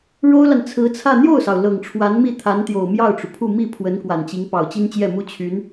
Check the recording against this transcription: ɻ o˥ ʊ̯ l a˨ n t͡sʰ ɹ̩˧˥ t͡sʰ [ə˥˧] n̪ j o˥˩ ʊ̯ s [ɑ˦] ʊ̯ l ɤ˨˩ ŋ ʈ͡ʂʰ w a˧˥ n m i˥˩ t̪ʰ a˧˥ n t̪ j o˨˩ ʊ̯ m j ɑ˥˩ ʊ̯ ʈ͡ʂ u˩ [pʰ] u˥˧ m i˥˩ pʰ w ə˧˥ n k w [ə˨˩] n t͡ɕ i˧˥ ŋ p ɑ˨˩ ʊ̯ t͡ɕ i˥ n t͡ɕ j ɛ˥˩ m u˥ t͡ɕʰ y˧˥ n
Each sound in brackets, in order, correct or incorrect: incorrect: ä˥˧, incorrect: ɑ˩, correct, incorrect: a˨˩

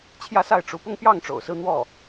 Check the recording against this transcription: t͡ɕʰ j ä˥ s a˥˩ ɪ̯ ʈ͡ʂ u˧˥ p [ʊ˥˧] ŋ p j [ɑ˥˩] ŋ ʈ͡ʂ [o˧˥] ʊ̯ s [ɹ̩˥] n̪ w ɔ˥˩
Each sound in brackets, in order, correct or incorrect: correct, correct, incorrect: o̰˨˩, correct

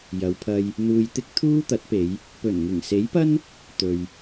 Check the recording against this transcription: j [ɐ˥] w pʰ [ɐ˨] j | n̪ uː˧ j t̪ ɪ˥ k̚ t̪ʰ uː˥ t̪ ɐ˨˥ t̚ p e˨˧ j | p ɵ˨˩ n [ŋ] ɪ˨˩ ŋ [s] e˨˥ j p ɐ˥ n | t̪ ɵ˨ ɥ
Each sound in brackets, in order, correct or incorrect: incorrect: ɐ˨˧, incorrect: ɐ˧, correct, correct

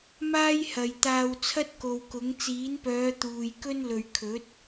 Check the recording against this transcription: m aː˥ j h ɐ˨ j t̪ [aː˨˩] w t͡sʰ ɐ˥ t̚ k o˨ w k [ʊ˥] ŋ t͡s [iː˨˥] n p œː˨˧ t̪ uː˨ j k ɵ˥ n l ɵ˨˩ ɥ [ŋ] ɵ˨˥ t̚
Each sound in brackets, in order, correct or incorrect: incorrect: aː˧, incorrect: ʊ˨˥, correct, incorrect: kʰ

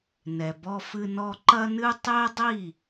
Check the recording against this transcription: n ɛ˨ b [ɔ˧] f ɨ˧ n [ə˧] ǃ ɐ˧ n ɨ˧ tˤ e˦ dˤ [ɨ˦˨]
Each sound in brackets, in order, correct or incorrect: correct, incorrect: ɔ˧, incorrect: i˦˨

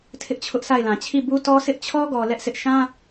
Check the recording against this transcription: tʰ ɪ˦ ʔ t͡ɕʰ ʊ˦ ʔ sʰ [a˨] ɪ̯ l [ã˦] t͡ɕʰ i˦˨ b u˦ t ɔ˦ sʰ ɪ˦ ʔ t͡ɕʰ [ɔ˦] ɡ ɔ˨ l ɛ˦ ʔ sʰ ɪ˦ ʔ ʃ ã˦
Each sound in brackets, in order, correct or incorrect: incorrect: a˦˨, incorrect: ã˨, correct

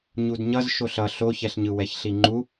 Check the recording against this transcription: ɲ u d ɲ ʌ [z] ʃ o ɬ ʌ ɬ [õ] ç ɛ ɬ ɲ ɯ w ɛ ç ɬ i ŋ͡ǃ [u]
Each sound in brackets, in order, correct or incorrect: correct, incorrect: o, correct

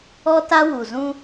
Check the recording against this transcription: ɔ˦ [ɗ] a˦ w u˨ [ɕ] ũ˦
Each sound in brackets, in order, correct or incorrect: incorrect: t, incorrect: z

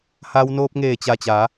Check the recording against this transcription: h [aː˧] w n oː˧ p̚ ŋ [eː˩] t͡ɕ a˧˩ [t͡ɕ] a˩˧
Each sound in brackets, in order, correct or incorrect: correct, incorrect: eː˧˩, correct

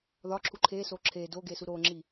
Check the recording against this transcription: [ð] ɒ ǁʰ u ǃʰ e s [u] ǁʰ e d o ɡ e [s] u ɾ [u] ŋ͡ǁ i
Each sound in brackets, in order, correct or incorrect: correct, incorrect: o, correct, incorrect: o

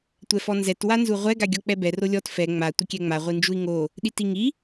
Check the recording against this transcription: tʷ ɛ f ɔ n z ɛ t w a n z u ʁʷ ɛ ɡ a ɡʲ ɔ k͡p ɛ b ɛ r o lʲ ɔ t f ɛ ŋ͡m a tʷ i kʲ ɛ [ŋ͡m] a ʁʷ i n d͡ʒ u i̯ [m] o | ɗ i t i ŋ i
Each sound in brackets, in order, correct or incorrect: correct, incorrect: ŋ

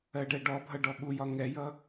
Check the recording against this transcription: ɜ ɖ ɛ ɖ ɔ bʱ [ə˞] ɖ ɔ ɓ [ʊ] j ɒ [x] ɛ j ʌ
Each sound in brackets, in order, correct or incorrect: incorrect: ʌ, incorrect: u, incorrect: ŋ

